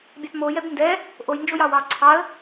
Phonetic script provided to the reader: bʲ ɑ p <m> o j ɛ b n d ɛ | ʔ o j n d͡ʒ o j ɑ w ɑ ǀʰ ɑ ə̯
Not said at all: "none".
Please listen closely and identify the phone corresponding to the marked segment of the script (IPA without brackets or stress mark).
m